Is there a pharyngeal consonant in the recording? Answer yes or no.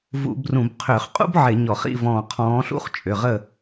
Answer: yes